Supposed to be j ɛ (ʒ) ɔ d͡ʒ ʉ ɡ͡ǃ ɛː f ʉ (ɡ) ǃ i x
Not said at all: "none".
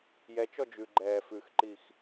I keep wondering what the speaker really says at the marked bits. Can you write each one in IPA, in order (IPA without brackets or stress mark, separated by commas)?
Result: t͡ʃ, x